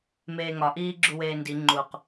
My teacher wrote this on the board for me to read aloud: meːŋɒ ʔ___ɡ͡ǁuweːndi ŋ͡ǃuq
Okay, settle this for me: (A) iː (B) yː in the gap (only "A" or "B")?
A